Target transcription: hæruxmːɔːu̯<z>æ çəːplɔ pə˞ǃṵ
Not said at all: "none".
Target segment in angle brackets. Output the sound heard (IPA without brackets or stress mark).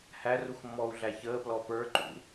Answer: ɮ